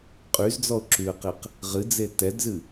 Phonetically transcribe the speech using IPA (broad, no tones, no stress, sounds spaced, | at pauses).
qʼ y z d͡z ɔ ʊ̯ ǁ y ə̯ q e q | ʁ ɨ d͡z e t ɛ d z ɨ